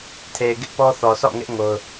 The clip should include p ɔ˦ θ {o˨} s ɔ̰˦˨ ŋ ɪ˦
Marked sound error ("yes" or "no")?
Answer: yes